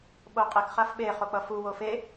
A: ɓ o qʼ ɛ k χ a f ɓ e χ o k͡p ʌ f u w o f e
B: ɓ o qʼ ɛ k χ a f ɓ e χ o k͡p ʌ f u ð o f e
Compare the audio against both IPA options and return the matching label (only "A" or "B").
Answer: A